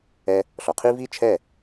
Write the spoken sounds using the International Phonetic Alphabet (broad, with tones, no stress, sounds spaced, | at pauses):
ɛ˧ | ɬ ɔ˨ qʰ i˦ v i˦ t͡ʃʰ ɛ˦˨